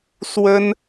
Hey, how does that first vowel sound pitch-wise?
high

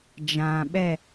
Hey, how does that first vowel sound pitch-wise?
low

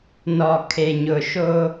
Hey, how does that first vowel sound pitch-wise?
low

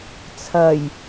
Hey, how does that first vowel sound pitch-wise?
low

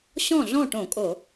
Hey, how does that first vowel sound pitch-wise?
falling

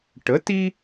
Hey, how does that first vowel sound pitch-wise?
rising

